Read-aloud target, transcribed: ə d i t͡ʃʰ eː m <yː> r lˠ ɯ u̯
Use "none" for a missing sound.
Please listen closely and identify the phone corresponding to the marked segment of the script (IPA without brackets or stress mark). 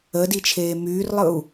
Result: yː